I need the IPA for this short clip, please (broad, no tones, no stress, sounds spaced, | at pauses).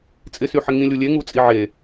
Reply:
t͡sʼ ɪ s y ħ ɪ ŋ ĩ lʲ u lʲ e ŋ u t͡sʼ i ʕ e